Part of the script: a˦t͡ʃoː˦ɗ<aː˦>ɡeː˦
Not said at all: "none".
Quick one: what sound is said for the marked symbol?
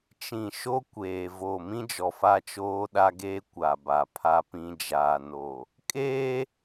a˦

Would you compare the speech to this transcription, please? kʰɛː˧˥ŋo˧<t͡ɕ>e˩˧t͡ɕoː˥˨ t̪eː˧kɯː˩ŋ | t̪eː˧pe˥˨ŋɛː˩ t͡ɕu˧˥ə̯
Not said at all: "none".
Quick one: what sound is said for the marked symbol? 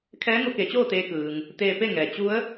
k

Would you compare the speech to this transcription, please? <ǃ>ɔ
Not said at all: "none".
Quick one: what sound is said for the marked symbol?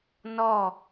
n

